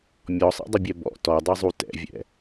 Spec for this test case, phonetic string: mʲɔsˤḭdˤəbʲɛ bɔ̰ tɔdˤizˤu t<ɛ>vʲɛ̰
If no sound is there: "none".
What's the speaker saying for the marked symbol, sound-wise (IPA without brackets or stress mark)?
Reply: ɛ̰